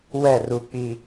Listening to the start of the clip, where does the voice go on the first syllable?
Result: falling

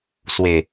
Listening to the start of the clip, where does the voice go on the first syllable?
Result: low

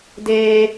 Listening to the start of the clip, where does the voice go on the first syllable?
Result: high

